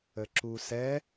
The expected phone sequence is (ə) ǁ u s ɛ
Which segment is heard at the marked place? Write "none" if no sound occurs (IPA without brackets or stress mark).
ə